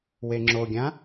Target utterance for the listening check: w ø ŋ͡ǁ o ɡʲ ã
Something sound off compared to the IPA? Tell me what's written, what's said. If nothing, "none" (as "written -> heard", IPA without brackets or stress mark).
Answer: ø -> e